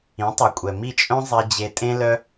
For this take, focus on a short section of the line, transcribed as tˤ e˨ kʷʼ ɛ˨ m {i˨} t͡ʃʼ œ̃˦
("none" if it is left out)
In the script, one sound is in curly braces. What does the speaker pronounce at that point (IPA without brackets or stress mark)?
i˦˨